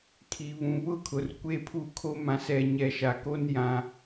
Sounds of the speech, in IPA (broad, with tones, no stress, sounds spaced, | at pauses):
kʰ i˨ β ũ˨ β ʊ˦ kʰ ʊ˨ r kʷ e˦ pʰ u˦ kʰ o˦ m ã˨ s ɛ˨ ɲ ɛ˨ ʃ a˨ k o˦ n j ã˦